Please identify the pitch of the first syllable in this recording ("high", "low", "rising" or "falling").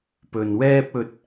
low